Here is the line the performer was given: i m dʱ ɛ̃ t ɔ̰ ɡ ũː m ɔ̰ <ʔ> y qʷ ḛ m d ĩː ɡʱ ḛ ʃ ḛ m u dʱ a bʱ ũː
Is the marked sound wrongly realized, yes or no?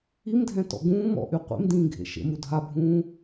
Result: no